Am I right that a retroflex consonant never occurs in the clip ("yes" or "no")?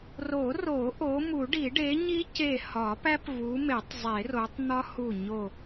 no